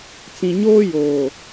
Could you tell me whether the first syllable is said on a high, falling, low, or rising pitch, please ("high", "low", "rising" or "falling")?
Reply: low